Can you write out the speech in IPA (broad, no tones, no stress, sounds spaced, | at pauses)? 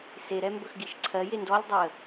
s e ɾ ɛ m b ɵ x ɡ i ʃ ǀʰ ɜ j e n d ɔ lʲ dˤ o ə̯